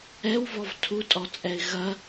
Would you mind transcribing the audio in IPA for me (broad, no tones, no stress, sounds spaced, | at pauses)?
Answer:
ɛ w v ɔ v tʰ u tʼ ɔ t͡sʼ ɛ ɪ̯ ɣ ɐ